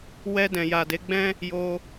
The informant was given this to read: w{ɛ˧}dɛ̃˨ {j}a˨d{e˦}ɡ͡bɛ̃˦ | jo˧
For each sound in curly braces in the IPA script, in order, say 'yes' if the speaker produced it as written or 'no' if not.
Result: yes, yes, no

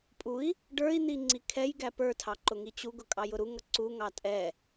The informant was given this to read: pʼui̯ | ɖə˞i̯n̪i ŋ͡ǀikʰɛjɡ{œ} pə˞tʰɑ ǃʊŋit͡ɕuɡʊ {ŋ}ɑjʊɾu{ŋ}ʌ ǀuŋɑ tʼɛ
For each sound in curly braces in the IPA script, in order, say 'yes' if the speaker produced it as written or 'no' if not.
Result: no, no, yes

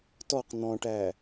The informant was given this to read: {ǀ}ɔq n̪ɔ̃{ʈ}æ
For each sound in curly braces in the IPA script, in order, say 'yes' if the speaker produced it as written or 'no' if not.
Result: no, yes

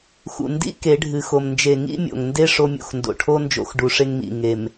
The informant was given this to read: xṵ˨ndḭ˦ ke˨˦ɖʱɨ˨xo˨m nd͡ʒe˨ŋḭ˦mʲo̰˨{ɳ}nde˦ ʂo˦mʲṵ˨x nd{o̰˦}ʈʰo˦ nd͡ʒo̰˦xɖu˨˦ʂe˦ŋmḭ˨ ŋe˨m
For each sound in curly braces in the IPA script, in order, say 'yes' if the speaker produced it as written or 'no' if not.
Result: no, no

